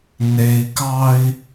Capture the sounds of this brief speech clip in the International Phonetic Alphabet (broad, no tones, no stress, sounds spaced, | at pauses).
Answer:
n e i̯ k ɑ i̯